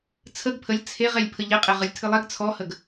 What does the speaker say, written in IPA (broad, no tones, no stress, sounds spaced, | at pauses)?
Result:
t͡sʰ ə ɡ pʰ ə lʲ t͡sʰ e ʁ e lʲ pʰ ə ʎ ɪ qʼ e ʁ ɨ lʲ tʰ ɨ lˠ ɛ ɡ t͡sʰ ɔ h ə ɡ